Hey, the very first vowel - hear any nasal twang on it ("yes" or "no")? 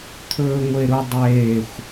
no